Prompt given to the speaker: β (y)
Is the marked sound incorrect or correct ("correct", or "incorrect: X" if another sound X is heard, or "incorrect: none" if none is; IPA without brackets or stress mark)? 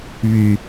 correct